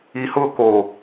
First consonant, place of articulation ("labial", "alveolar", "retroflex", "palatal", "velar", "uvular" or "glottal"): glottal